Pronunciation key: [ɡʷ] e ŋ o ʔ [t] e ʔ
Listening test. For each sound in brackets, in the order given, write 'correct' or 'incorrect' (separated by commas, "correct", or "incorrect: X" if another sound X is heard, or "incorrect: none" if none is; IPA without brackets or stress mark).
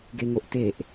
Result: incorrect: ɡ, correct